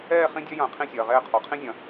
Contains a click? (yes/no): no